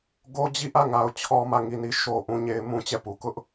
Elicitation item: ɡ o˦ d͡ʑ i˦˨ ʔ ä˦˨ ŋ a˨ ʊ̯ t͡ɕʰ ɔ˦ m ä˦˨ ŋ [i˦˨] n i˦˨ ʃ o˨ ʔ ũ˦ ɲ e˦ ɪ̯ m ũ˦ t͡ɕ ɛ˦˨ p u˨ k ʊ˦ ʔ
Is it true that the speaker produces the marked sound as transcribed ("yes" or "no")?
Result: yes